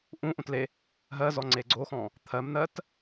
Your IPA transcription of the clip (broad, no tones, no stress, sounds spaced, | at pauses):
ʔ ũ ʔ ũ t l e | ɦ ɜ z ɔ ŋ͡ǀ e ɡ͡ǀ o x ɔ̃ | t̪ʰ ɜ m n̪ ɜ t